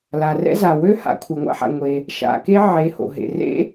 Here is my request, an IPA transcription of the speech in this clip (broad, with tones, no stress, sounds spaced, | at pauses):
l a˩ r ɛ̰˥ z a˩ w ø˥ h a̰˩˧˩ kʷʰ ɛ˩ ŋʷ a̰˥ ħ a̰˩ ŋʷ e˩ | ʃ a̰˩˧˩ k e˥ ʕ e˩˧˩ h o̰˩ ɦ ḛ˩ r ḛ˥